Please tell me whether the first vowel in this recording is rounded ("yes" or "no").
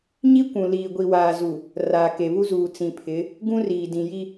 no